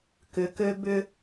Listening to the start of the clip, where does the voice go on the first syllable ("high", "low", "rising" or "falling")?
rising